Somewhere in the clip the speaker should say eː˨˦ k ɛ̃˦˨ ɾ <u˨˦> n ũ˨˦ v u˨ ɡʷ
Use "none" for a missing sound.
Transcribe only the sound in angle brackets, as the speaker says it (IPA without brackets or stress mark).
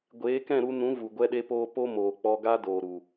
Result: u˧